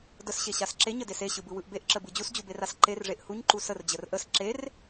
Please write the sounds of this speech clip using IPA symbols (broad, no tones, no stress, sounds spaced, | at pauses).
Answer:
d ə s ɕ e ɕ a s ǁ e ɲ ə d e s e ɕ ɯ b ɯ w ɯ ʔ b e ʔ ǁ ə b ɯ d͡ʑ u s d͡ʑ u b e r a s ǃ e r ʐ e ʔ h u ɲ ǃ u s ə r d͡ʑ ə r ʔ ə s ǁ e r